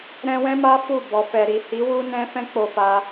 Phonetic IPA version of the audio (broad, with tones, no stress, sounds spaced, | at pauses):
ɾ ɛ̃˧ w ɛ̃˦ m a˦ f u˦˨ b ɔ˨ f ɛ˨ ɾ i˨ h i˨˦ w u˦ n ɛ̃˦ f ɛ̃˦ k͡p o˧ f a˧